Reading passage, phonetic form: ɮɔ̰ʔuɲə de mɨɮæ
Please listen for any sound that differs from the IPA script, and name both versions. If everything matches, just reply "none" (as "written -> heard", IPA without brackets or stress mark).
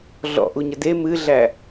none